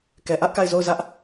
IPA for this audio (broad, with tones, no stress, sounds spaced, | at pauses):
k ɛ˨ ʔ ä˦ ʔ k a˦˨ ɪ̯ z o˦˨ ʊ̯ z ä˦ ʔ